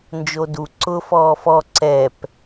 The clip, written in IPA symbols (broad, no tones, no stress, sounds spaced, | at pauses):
n d͡ʒ o d u ǀ ʊ f ɔː f ɔ ǀ ɛ p